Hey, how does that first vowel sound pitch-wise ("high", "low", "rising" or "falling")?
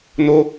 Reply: high